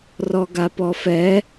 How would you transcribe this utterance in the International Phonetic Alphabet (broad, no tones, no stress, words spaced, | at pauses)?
rɔɡapɔfɛ